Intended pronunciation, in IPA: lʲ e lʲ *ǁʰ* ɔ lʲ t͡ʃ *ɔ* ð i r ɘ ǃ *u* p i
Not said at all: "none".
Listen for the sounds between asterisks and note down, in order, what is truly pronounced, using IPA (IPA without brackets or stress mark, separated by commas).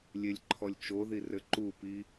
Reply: ǃʰ, o, u